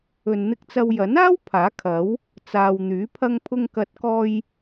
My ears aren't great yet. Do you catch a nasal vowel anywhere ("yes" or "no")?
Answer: no